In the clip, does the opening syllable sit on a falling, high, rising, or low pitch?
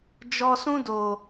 low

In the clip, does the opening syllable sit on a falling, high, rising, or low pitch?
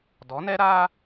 rising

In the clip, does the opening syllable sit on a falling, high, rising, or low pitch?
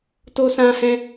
high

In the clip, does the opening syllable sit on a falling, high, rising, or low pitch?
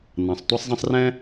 low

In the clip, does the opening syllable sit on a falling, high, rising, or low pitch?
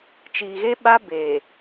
low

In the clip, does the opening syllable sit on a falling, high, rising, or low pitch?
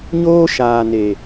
high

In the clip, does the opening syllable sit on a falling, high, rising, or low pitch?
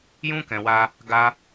high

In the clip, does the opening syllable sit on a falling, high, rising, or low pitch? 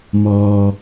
low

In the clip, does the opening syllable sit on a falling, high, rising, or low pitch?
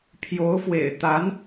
rising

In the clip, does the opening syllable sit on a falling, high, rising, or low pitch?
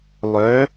rising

